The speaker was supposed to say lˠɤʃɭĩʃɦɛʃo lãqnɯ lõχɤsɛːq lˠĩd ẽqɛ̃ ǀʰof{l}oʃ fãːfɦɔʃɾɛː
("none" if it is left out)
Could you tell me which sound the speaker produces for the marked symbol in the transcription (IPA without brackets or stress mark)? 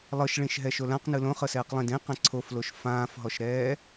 l